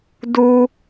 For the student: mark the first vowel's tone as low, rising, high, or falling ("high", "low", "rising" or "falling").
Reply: high